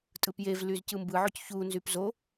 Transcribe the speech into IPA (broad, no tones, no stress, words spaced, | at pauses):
tʼɯpjevlyz cɯmbɯʕoc çu nzypzo